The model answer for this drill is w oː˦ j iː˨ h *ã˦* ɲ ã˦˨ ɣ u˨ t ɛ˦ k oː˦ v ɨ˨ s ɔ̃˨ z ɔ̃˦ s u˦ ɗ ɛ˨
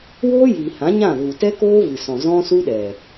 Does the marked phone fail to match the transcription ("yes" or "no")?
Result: yes